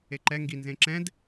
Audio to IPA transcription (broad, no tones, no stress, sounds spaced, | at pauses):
e ǃ ɛ ŋ ɡ i n z ẽ ǁ ɛ̃ d